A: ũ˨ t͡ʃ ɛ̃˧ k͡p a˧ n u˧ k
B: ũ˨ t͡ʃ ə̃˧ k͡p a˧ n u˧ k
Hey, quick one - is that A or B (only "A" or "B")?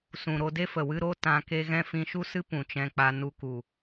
A